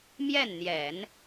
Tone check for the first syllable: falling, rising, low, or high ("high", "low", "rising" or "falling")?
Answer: falling